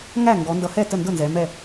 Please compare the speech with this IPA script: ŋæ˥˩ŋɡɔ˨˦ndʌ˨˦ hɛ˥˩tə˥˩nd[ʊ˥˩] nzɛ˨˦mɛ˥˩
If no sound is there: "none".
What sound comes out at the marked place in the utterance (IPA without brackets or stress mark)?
ʊ˥˩